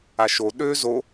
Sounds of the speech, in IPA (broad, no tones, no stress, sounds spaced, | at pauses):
a ʃ o ɗ ø z o